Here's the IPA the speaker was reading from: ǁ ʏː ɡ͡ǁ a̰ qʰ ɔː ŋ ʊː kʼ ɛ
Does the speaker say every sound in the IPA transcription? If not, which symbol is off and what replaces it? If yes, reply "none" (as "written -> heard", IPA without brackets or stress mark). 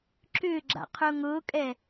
ɔː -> ʊː